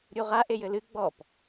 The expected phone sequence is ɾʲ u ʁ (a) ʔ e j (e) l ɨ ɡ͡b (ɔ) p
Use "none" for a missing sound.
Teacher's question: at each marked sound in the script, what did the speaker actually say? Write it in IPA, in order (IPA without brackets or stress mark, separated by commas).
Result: a, ɘ, ɔ